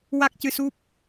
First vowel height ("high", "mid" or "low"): low